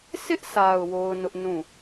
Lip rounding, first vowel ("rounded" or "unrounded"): unrounded